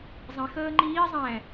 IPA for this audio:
zˤĩx əːŋ͡ǃiː zˤɛ̃

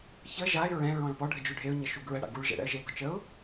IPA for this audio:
çə ʒaɪ̯ ɹɛ̃ ɹɔ̃ɭpɔ ɖʱəd͡ʒʉɖʱeʊ̯ ɲəʃuɡɹə ɽa̰ɡuɭ ʒɛ̰ɽɛ̰ə̯ʒe ɡɔt͡ʃəʊ̯

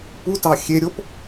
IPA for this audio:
putɑ xʲeɾʲop

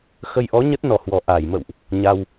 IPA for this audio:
xə˧jʔɔ˨˦ ɲə˦˥t̚nɔ˨˩hwɔ˨˩ ʔa˧˩jmə̰˧˨wʔ | ɲa˧w

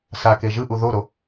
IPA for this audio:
sake ʒɯʔu ðoɾo

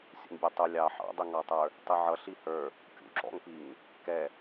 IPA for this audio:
sʲṵŋbʲɔtˤu lʲɑ ħɑ̰dˤiŋɑtˤə˞ | tˤiʕʌ ɬihə˞ | kʲṵ ǁɔ̰ŋpiŋ | kɛ

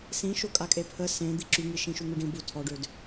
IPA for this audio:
sĩʃo kʼakʼepʰə sẽ d̪iǁyŋi ʃĩʃuŋuɖĩ bu tʰɔɖød

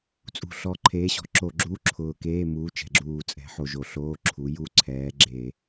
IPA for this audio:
t͡sʼṳ˨˩ɬɔ˨˥ ǃʰeː˨˥ɕɔ̤˨˥ǁo˧˩˧ɡ͡ǁuː˧˥˧ ǁʰʊː˨˩keː˧˥˧muː˨˥t͡ʃɛ̤˨˩ ɡ͡ǁuː˨˩t͡sʼɛ̤˨˥ħo˨˩ ʒo˧˩˧ɬoː˧˥˧ǁʰu˨˥ ju˧˥˧ǀʰɛː˨˥ ɡ͡ǁeː˧˩˧

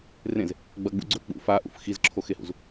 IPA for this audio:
rẽz | ɡ͡bɐɡ͡bṵ ɡ͡ǀɵ k͡pṵ faʔṵf xizǁʰoxehṵz

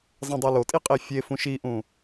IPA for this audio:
zˤɛ̃dˤulotʼi qʼifʲefũʃ iʔũ

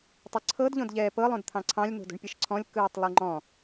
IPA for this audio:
tˤɯǀʰɤdʎõd ʎɛːpɤlˠõd t̪ʰɑ̃ǀʰɑ̃lʲno̤ do̤ɳpʲɯʃǀʰɔ̃lʲ kɯːtˤlˠɯŋ͡ǃɔ̃

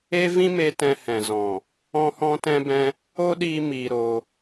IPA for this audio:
e˦ vĩ˦me˧ tɛ̃˧hɛ̃˨zɔ̃˨ | ɔ̃˦hɔ̃˦ tɛ̃˦bɛ̃˦ | o˦ɗiː˧ miː˧ɾo˧

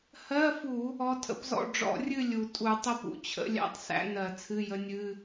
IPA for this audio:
hɜ˧˥˧fu˧˩˧ | ɔ˧˥tʰə̰˧˥pzɔ̰˥˨ ɖ͡ʐɔ̰˧˩˧rʲɨ˥˨ lʲu˩tʼu˧˩˧ tˤə˥˨pṵ˩t͡ɕʰə̰˧˥ lʲæ̰˧˥˧tˤsæ̰˧˥nɜ˧˩˧t͡sʰɨ˧˥˧ jə˧˥nʲɨ˧˥˧

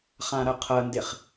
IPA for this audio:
χãɾɐqʰɐndeχ

